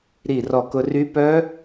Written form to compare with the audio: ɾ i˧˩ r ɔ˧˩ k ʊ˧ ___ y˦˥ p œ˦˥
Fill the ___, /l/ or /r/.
r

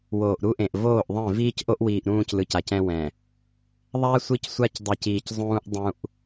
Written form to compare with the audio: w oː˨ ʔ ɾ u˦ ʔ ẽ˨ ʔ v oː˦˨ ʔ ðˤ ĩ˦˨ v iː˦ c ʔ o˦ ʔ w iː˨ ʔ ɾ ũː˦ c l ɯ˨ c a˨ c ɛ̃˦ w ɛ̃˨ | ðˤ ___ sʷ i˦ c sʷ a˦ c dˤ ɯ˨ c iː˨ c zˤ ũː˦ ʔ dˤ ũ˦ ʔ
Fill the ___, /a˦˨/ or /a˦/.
a˦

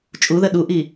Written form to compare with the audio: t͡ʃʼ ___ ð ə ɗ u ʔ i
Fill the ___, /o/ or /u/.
u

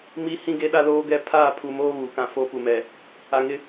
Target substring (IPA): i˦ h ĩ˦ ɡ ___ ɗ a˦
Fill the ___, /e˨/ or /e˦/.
e˦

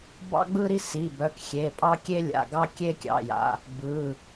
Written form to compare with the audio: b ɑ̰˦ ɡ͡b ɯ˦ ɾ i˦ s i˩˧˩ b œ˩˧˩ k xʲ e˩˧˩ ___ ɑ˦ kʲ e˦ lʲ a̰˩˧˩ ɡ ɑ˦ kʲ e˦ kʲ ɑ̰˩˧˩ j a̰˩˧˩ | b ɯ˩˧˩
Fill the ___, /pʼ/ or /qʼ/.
pʼ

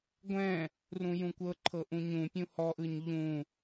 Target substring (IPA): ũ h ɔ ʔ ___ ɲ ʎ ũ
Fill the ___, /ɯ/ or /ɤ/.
ɯ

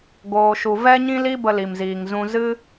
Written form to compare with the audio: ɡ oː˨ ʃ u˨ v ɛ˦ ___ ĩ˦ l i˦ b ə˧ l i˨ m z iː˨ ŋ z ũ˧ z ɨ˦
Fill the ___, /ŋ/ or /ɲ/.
ɲ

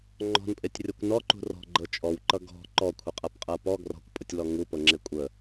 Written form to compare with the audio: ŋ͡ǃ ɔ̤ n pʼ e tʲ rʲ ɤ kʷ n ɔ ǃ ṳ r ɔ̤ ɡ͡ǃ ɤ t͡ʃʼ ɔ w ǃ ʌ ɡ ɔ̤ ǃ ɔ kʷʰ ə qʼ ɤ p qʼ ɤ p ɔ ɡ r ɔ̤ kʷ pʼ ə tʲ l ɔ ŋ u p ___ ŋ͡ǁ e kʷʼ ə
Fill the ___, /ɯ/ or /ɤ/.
ɤ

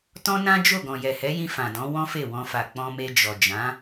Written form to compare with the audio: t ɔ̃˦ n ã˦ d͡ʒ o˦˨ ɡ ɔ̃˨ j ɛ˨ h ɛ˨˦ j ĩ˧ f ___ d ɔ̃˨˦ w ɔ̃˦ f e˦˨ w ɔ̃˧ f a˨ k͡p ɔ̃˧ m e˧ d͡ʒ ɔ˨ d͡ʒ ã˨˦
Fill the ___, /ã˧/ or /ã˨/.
ã˨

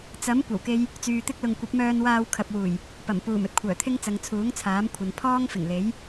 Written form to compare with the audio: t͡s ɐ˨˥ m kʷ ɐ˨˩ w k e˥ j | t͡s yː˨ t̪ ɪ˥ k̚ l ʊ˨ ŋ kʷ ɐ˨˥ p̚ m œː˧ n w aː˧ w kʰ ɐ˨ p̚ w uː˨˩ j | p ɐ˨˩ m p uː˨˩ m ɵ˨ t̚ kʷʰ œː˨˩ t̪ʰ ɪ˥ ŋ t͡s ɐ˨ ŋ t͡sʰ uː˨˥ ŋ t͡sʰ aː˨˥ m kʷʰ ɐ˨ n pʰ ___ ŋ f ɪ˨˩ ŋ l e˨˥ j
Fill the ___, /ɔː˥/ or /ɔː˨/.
ɔː˥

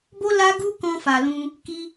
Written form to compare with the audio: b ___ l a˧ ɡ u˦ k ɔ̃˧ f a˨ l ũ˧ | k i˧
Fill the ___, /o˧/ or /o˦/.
o˧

